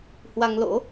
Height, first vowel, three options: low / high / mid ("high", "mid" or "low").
low